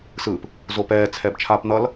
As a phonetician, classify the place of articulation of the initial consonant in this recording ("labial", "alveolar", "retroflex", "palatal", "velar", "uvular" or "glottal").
alveolar